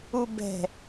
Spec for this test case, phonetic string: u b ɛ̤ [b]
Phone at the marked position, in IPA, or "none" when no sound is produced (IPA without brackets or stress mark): none